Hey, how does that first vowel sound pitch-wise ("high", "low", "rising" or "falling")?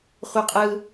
high